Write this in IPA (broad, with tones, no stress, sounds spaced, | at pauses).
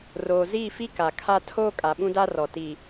r oː˨ z iː˦˨ f i˦ k a˨ kʰ a˦ tʰ oː˦ kʼ a˨ ɓ ũ˦ d a˦ r ɔ˨ t i˨